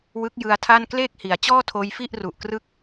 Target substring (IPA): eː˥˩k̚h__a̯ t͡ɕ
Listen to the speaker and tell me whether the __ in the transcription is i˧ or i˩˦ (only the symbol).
i˩˦